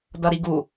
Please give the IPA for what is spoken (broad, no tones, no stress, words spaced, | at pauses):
dʌɾiɡu